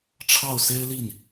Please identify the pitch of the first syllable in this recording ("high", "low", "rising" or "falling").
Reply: falling